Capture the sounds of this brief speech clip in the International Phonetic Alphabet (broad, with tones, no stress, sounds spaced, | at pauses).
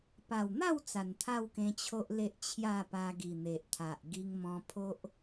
p a˨˩ w n̪ a˥˧ w t͡s a˨˩ n t̪ʰ a˥˧ w k ẽ˧ t͡ɕʰ o˦ ʔ l e˦ ʔ t͡ɕʰ j a˥˧ p a˧ ɡ i˨˩ n̪ e˨ ʔ t̪ʰ a˨ ʔ ɡ i˧ ŋ m ɔ̃˧ pʰ o˦ ʔ